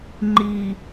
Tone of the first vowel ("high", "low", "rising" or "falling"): low